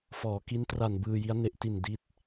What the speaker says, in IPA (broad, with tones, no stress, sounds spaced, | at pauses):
f ɔː˩˦ k i˦˥ n t r a˨˩ n b ɯː˧ j i˦˥ a̯ n e˦˥ ʔ t i˨˩ n d i˥˩ t̚